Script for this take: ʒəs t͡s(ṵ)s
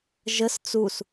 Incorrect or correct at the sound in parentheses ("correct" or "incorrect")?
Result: incorrect